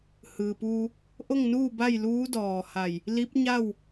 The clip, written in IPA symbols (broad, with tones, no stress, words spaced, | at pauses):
hɯː˩puː˧ | ʔo˥˨ŋnuː˥˨ba˥˨jluː˧˥ dɔː˧˩ha˧˩j | li˧˥p̚ɲa˥˨w